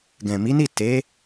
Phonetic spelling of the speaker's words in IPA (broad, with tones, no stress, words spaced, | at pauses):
ɡɛ̃˨mi˨˦ni˦˨ te˨˦